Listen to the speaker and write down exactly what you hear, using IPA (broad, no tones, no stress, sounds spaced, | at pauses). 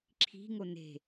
ǁʰ i̤ ŋ o n e̤